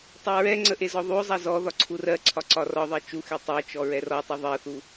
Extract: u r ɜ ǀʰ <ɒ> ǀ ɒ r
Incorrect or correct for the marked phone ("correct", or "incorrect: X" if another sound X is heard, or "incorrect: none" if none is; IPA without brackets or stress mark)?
correct